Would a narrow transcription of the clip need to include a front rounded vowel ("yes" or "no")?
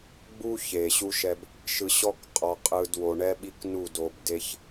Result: no